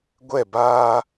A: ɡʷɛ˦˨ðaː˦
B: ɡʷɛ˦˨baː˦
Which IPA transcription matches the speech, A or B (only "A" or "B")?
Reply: B